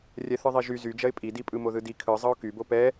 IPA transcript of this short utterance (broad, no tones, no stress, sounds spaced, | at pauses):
rʲ ɛ θ ɯ ðˤ i ʒ y z y d͡ʒ ɐ ɪ̯ pʼ i d i pʼ ɯ m o ð ɯ d i kʰ ɯ zˤ ɤ ʊ̯ k y b o p ɛ